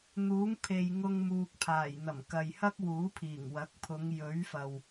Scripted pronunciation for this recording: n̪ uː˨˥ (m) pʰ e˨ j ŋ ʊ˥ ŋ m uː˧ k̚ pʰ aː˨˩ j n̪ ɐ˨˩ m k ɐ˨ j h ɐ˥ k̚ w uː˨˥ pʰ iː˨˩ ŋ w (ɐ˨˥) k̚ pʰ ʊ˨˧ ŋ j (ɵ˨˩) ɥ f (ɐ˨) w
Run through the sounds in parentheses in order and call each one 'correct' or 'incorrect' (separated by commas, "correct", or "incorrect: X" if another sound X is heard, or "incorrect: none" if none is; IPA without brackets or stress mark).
incorrect: ŋ, correct, incorrect: ɵ˨˥, correct